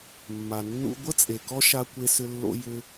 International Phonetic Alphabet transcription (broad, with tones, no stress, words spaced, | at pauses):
mːa˨nːṵ˧ ɡʷə˦t͡sʼe˨kɔ˦ ʃa˦kʷe˦sʏ˦lːo̰˦ jʏ˧